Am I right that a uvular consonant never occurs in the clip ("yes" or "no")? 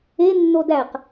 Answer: no